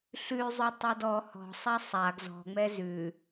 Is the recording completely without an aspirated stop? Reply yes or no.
yes